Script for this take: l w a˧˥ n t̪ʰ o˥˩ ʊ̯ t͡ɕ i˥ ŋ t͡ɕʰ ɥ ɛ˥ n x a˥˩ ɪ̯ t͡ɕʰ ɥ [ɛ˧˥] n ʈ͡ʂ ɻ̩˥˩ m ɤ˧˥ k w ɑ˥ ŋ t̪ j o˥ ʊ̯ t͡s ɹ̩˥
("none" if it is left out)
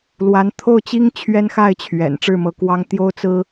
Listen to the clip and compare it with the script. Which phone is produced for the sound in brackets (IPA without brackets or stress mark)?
ɛ̰˨˩